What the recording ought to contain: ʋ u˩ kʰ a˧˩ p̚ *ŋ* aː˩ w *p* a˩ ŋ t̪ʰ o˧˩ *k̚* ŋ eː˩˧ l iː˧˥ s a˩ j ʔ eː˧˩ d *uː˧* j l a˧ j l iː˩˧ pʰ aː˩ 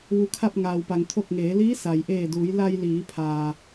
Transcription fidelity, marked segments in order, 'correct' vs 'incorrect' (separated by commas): correct, correct, correct, incorrect